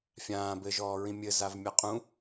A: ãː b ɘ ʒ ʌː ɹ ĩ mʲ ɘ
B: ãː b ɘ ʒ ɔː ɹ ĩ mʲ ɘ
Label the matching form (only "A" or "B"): B